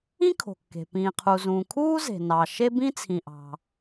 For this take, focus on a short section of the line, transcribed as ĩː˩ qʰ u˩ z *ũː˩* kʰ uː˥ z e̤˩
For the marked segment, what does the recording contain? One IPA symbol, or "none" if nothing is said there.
ũː˩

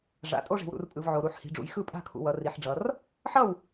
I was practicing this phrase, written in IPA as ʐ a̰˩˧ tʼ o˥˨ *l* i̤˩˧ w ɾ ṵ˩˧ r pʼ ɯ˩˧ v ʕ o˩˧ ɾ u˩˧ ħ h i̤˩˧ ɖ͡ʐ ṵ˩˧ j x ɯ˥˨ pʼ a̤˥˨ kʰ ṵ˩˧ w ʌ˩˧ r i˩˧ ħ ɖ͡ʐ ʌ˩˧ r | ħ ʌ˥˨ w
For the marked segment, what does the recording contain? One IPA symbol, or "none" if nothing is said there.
ʐ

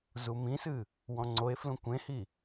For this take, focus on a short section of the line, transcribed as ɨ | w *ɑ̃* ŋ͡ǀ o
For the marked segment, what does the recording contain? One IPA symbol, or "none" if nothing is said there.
ɔ̃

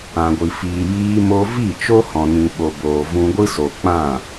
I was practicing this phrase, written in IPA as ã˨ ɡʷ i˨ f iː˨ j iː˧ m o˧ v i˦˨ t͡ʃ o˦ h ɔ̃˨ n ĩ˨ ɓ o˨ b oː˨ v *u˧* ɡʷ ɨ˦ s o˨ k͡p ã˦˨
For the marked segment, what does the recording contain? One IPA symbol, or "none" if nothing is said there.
ũ˧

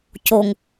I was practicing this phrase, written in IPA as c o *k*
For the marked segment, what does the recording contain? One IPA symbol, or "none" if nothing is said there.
ŋ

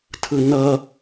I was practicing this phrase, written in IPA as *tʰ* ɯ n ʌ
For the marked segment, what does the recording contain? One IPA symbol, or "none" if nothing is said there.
tʰ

